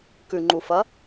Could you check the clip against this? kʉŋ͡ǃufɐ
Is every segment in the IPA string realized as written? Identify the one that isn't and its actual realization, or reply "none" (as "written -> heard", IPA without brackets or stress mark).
none